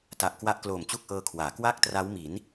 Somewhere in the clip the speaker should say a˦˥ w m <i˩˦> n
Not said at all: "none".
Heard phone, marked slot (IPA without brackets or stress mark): i˩˦